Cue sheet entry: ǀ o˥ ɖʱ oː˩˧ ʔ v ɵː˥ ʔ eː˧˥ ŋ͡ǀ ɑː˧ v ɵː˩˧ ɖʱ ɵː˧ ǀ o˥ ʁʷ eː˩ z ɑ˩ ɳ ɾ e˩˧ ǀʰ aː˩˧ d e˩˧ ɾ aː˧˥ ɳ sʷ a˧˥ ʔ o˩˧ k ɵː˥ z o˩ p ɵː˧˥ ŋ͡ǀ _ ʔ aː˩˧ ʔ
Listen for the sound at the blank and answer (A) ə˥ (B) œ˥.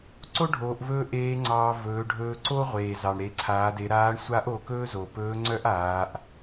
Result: B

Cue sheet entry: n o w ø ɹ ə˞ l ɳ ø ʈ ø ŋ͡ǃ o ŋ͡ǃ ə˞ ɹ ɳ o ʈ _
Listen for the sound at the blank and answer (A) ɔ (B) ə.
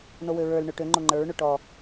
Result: A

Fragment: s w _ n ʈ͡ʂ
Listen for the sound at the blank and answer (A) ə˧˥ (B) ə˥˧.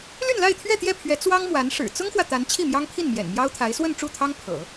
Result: B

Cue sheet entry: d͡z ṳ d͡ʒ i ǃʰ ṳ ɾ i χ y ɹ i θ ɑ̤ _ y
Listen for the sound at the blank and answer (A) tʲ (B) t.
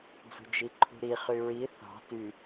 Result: B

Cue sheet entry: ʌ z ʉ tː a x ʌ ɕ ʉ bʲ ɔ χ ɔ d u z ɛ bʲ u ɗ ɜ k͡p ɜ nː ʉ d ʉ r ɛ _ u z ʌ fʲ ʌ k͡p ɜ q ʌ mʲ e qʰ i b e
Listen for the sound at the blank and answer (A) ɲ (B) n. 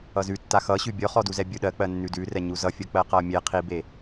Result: A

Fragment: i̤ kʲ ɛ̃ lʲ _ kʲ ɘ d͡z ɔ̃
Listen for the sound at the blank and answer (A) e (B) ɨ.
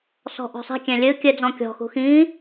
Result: B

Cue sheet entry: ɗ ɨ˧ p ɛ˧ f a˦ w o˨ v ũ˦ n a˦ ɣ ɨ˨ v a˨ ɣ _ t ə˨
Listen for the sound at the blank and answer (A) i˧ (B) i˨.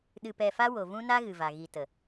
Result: B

